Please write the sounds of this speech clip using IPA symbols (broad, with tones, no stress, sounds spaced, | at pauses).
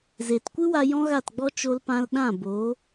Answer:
z eː˨ t kʷ ɨ˦ w a˧ j ɔ̃˦ ɣ a˦˨ t ɡ͡b ɔ˦ t͡ʃ o˧ l p ã˧ l ɗ ã˦˨ b oː˨˦